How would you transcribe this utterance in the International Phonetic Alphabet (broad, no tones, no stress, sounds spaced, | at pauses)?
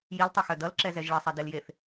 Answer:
j i l tˤ ʌ x œ d ʌ l ǁ ɛ z ɛ ʒ ɭ ɘ sˤ ɛ d e l j e θ